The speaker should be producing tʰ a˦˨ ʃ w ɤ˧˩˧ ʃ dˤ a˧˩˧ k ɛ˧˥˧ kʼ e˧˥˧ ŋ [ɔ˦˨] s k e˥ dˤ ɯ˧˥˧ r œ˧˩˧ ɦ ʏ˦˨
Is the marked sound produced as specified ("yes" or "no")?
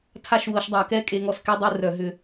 yes